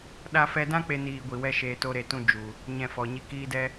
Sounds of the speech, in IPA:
ɗ a˧ f ɛ˧ d ã˦ k͡p e˦ n iː˧ ɡʷ i˨ w ɛ˦ ʃ eː˧ t o˦ ɾ e˧ t ũ˦ d͡ʒ u˨ | ɲ ɛ̃˧ f ɔ˨ ɲ i˧ k iː˦ d ɛ˦

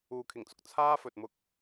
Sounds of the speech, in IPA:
uː˨ kʰ ɪ˨˩ ŋ t͡s ʊ˨ k̚ t͡sʰ aː˥ f ɵ˨ t̚ m ʊ˥ k̚

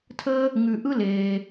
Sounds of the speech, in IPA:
tʰ əː˧ | ŋ ʉ˩ ʔ ɯ˧ l eː˩

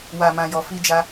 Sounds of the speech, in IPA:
w a˨ m ã˨ j ɔ˨ f i˧ d͡ʒ a˧

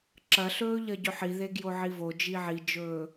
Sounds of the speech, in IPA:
ǁ ɐ ɬ ɵː ʎ ɐ ɟ ɵ ħ i ð e ɡ j o ʕ i v o d͡ʒ i ʕ i d͡ʒ ɵː

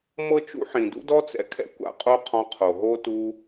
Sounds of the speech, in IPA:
m ɤ˦ t͡ʃ ṵ˦ ħ ĩ˨ d ṵ˦ d ɔ˦ t͡s ɛ̰˦ kʰ ɛ̰˦ kʷ a̰˦ qʼ o˦ qʰ ɔ̃˧ qʰ o˨ ɦ o˦ t u˦

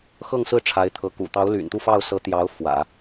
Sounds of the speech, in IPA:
x ɤ˥˧ ŋ s ɹ̩˥˩ ʈ͡ʂʰ a˧˥ ɪ̯ t̪ʰ ɤ˧˥ k ṵ˨˩ t̪ ɑ˧˥ ʊ̯ l y̰˨˩ n t̪ u˥˧ f ɑ˥˩ ʊ̯ s ɤ˧˥ t̪ j ɑ˧˥ ʊ̯ f w ä̰˨˩˦

